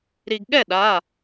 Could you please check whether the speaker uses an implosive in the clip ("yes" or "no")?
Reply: yes